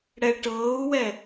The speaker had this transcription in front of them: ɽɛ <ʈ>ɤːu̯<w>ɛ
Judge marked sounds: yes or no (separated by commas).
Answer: yes, yes